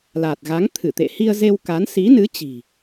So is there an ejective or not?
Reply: no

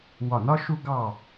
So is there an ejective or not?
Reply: no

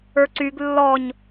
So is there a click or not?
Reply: yes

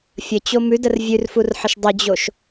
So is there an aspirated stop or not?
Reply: no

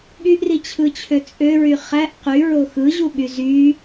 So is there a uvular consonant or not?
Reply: yes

